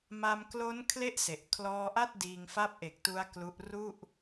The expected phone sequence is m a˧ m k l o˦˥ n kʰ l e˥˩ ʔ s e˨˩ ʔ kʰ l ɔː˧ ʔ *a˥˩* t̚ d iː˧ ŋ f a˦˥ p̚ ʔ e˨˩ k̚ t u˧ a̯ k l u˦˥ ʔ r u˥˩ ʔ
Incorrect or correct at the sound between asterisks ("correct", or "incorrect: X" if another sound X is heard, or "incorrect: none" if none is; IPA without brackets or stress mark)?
correct